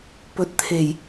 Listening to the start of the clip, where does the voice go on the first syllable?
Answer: rising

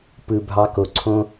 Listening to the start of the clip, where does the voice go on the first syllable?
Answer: low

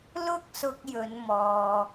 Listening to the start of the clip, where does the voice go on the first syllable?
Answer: high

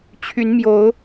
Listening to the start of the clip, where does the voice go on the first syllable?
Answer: rising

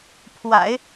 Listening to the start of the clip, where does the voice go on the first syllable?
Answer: low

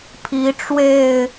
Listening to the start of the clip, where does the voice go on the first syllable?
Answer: rising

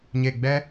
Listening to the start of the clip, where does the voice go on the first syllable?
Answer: low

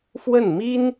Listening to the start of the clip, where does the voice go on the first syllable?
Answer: falling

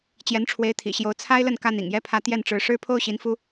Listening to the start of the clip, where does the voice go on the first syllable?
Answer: rising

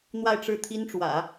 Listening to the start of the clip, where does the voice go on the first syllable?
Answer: falling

